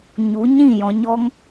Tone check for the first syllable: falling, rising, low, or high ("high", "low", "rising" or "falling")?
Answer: rising